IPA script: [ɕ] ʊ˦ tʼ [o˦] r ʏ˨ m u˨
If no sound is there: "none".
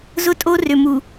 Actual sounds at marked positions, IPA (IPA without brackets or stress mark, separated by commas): z, o˦